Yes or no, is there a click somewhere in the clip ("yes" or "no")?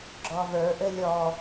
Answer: yes